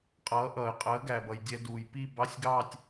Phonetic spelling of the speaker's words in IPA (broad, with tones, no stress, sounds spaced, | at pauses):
qʼ ʌː˩˥ ʔ ʌː˩ ɪ̯ qʼ əː˩˥ ɡ æ˩ b ʌ˩ j dʲ ɛ˧ d uː˩ j p i˥˧ b ɑ˧˥˧ sʲ ɡ ɑ˥˧ tʲ